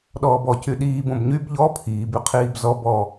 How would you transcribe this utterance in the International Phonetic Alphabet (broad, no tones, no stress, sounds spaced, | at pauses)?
ɗ ɔː b ɔ c y ɗ iː b õ b ɲ y b ʎ ɔ pʰ iː b y qʰ iː b z ɔ b ɔ